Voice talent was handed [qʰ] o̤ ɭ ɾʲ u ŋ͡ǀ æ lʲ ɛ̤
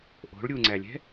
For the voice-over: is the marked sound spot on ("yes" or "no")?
no